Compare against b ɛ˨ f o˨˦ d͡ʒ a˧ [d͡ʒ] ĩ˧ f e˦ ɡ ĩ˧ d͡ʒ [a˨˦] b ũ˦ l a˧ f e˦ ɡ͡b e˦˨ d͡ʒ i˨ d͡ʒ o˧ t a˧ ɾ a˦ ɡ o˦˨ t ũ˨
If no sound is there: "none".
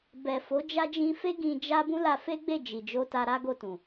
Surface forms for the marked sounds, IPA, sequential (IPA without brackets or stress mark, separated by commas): d͡ʒ, a˦